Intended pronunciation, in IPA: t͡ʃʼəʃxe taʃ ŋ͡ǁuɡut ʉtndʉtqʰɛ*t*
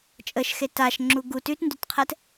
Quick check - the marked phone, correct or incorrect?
correct